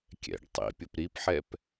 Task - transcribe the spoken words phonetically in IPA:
kʲ ɛ̰ ɖ tˤ ḭ pʲ ʊ p ɾ i p ħ ɛ p

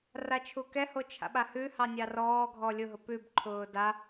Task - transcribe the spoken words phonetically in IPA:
r a t͡ʃʰ u k ɛ h o t͡ʃʰ a̰ ɓ a h ʉ h ɑ nʲ ɑ r ɔː ɡʱ ɔ lʲ ʊ ɦ ʊ p ʉ b ǃʰ ʊː d a

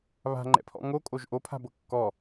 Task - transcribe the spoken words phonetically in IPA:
β a̤ ŋ͡ǃ ɛ̰ pʰ ɔ̰ ŋ o kʼ o ʒ ʔ o pʰ a̤ b ɤ kː ɔ

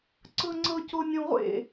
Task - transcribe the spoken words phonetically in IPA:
ǀ ɤ ŋ͡ǀ ɤ c o nʲ õ ʁʷ ḛ

